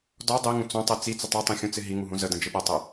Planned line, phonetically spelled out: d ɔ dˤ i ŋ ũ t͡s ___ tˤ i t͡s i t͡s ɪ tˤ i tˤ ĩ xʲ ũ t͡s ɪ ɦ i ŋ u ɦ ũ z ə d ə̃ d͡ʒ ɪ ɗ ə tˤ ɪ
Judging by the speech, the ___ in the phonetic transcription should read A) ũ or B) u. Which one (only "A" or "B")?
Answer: A